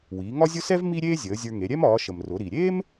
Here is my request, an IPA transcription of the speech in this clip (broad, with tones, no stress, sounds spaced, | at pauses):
w iː˩˧ ŋ ɒ˥ zʲ ʊ˥ s ɛ˥ v m i˥ ɾʲ eː˥ zʲ əː˩˧ zʲ ə˞˧ ŋ e˩˧ ɾʲ ɛ˥ m ɒː˩˧ ʃ ə˩ m r ʊ˩˧ ɾ i˩ ɾʲ eː˥ m